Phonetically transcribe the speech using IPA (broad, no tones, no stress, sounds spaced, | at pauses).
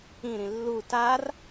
ĩ ɾ ĩ lː u t a r